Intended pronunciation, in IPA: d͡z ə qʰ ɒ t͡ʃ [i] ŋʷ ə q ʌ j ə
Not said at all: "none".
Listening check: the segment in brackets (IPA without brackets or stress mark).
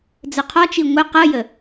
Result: i